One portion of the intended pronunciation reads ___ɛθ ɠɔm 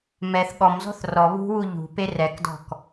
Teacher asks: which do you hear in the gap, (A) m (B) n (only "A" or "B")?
A